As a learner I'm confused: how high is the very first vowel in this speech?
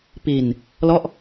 high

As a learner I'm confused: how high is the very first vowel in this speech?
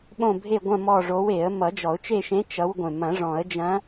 mid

